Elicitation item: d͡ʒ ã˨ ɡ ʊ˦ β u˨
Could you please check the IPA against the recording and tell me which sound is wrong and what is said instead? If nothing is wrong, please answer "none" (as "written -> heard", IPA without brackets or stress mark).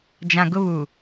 none